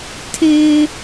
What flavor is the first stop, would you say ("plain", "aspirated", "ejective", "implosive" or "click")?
aspirated